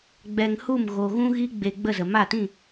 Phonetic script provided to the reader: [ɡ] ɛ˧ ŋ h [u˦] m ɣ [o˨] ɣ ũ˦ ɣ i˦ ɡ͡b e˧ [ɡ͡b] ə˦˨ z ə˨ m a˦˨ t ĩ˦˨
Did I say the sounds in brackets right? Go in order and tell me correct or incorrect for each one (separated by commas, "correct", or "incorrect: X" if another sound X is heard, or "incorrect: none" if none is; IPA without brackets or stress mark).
incorrect: ɡ͡b, incorrect: u˦˨, correct, correct